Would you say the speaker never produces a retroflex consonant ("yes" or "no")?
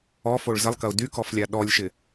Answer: no